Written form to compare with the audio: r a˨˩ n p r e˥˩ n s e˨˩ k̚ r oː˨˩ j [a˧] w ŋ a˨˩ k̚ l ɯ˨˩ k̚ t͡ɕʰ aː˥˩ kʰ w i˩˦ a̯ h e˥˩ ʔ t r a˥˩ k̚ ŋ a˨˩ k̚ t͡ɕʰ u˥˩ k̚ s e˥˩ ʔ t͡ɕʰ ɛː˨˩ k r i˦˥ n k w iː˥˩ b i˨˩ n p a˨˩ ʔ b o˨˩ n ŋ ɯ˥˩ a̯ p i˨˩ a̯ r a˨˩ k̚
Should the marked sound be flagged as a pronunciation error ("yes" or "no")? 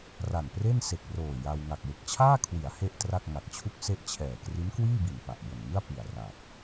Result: no